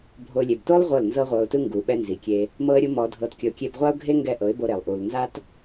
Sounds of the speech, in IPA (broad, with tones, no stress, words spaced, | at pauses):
bʱo˧ lʲe˨bto˦lˠ ʁʷɤ˦˨lnzɤ˦ʁʷɤ˧ʊ̯tɯ˦ ŋɡu˨ɓɛ˧nzi˨kʲe˧ | mɤ˦ə̯ɾʲu˦mɔ˧ dʱɤ˧tkʲɤ˧ʊ̯ kʲe˧bʁʷa˦ʊ̯ɡʱe˦ ŋɡɛ˧ ʔɤ˨˦ɪ̯bo˧ɾe˨lˠ ʔu˨lnza˦t